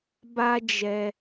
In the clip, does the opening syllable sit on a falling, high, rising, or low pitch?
high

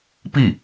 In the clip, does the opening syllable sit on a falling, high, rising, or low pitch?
falling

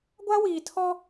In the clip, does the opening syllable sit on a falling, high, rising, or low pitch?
high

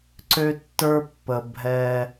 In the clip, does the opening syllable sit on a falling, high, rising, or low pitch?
high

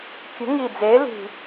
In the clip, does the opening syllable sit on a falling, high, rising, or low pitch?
rising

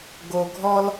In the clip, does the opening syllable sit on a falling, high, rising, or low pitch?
low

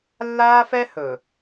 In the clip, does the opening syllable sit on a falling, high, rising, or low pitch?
high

